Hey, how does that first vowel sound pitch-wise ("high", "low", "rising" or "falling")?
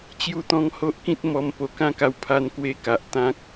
falling